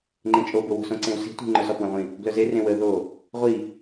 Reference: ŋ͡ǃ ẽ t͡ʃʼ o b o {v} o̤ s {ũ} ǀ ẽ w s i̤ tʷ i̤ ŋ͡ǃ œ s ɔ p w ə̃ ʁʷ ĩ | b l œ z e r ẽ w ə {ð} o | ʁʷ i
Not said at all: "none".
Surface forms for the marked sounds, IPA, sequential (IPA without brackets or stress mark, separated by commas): w, õ, ð